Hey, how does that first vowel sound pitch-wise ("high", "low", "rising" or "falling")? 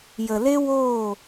low